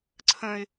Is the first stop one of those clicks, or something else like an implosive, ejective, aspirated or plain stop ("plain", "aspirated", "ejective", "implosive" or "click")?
click